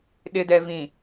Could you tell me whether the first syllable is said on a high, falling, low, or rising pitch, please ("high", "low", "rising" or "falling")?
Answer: low